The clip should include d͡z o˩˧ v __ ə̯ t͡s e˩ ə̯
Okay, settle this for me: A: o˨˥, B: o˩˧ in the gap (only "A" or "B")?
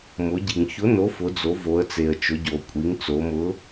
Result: B